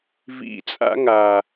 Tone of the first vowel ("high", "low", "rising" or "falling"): low